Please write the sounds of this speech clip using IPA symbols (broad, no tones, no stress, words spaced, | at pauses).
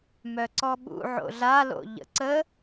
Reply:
mœǀɔɓṵ ʕo̰ɮa lo̰ʎə̰ǀə